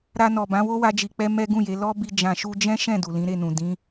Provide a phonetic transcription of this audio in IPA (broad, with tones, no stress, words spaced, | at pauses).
ɾa˧nɔ˨bã˨˦wo˦ wa˦d͡ʒi˧k͡pɛ˦ mɛ˦ ɡũ˦˨je˨˦ lɔ˦ bi˧ d͡ʒã˨ʃu˧d͡ʒɛ̃˦ ʃɛ̃˦˨ du˨lĩ˨˦ɾe˦˨nũ˨ dĩ˨˦